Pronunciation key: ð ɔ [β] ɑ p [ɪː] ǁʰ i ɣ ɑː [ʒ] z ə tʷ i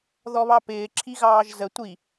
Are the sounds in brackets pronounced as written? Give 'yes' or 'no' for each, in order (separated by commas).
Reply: yes, yes, yes